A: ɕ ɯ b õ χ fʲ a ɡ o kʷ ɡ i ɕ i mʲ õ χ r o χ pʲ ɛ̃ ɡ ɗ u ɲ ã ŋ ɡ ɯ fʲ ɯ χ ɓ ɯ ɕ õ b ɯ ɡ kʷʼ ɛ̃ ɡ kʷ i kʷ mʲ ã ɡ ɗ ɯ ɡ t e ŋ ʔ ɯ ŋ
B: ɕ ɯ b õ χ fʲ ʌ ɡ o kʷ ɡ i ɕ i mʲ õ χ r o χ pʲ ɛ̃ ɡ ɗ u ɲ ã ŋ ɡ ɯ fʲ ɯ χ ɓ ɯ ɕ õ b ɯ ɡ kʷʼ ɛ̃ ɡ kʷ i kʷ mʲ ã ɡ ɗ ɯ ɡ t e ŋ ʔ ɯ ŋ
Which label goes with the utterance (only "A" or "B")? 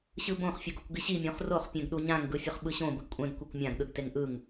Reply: B